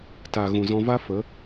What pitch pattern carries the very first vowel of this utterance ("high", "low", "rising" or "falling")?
low